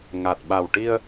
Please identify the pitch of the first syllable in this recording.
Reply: low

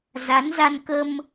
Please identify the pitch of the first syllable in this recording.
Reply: rising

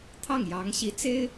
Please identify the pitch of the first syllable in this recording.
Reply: falling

